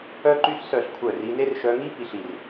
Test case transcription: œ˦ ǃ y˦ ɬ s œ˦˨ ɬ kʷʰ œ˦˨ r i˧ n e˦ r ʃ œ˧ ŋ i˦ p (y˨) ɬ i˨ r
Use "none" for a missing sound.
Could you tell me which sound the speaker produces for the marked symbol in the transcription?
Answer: i˨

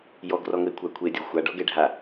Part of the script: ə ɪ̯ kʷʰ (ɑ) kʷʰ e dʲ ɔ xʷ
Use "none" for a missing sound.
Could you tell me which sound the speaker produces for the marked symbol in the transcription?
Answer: a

